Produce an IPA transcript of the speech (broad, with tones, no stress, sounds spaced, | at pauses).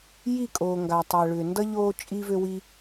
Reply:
j i˦˨ kʼ oː˨ ŋ ɡ a˨ tˤ a˨ ɭ ʏ˨ n d ʌ˦ ʎ oː˧ t͡ʃʼ i˧ v ø˧ w i˧